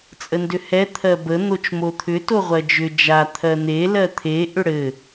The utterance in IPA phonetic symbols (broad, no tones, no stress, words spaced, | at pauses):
t͡sʼəndʏhɛ t̪ʰɜbə n̪ot͡ʃmot̪ʰʏ toʁʷɜd͡ʒʏ d͡ʒa t̪ʰɜn̪e lɜt̪ʰe ʔʏɽɘ